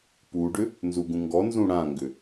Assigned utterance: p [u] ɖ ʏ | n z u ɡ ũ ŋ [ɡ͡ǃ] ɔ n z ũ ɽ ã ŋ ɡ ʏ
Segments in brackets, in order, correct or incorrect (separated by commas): correct, incorrect